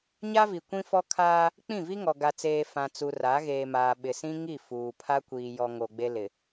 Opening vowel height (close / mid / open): open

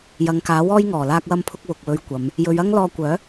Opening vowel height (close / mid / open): open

